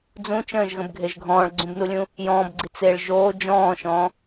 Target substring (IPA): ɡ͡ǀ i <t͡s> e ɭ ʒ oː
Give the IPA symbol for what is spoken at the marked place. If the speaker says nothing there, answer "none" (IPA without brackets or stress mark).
t͡s